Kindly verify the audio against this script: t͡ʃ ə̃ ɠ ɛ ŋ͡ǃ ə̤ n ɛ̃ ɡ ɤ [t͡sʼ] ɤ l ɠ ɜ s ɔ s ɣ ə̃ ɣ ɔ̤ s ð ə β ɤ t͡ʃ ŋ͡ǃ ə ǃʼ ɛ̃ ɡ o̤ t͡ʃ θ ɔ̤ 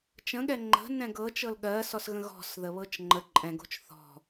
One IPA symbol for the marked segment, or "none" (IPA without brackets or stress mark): t͡ʃ